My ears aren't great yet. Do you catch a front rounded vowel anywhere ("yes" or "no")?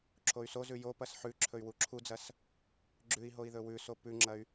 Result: yes